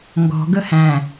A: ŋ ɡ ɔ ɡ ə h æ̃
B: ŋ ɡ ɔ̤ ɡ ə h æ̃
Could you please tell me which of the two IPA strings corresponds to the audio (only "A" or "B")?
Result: B